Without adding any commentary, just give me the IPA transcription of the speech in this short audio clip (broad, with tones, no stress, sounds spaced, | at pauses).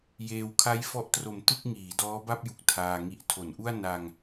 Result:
j eː˧ w kʰ a˦˥ j f ɔ˦˥ ʔ t r o˨˩ m t ɯ˥˩ k̚ ŋ iː˩˦ d ɔː˦˥ b a˥˩ p̚ j u˨˩ k̚ tʰ aː˧ ŋ i˦˥ ʔ tʰ o˩˦ n ʔ u˥˩ a̯ n a˧ ŋ